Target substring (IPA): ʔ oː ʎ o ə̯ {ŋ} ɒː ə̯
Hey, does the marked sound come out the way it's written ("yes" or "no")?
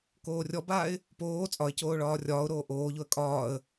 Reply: no